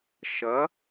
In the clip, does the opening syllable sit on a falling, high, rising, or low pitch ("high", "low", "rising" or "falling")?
rising